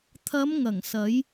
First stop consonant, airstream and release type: aspirated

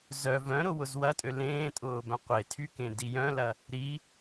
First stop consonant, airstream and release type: ejective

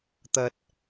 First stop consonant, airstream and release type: plain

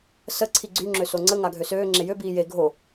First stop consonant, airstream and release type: click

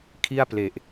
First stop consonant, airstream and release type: aspirated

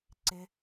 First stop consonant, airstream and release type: click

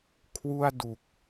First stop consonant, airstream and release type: aspirated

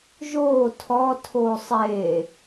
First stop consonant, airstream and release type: aspirated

